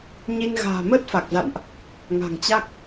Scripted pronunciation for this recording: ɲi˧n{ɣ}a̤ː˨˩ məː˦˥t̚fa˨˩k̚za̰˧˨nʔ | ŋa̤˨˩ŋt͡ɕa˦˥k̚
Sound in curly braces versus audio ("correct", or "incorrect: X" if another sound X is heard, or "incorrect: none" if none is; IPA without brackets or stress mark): correct